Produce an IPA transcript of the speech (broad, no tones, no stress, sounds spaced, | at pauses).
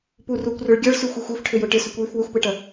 p u r u kʷ r ʏ ɭ ɡʲ ɐ ɭ s y xʷ e xʷ e f ʈʰ ʏ j ʊ ʈ ɪ s ʏ kʷ j y f w ʏ xʷ p e ʈ ɐ